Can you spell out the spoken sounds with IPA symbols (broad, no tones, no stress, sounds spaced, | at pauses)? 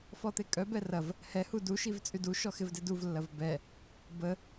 f ɔ t̪ e kʼ œ b ɛ r ɐ v | h ɛ h u d u ʃ i v t͡sʼ y d u ʃ ɔ x ɪ v d ɪ d u v lː ɐ v b ɛ | b ə